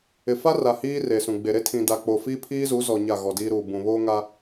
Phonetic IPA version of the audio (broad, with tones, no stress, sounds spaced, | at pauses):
ɪ˨ f a˦ r a˨ h iː˦ r e˨ s ũ˨ ɡ͡b e˨ ɾ e˦ tʰ ĩ˨ d a˨ k͡p o˨ f iː˦ pʰ iː˦ z uː˨˦ z ɔ˨ ɲ a˦˨ ɣ ɔ˨ d iː˦ ɾ uː˨ b ũ˨ β oː˦ ŋ a˦